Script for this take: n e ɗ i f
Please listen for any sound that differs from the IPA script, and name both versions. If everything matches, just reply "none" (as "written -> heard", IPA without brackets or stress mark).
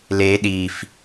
n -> l